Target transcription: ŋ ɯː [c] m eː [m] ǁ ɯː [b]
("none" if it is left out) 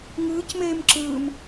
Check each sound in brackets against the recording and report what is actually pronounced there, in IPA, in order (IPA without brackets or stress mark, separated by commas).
c, m, m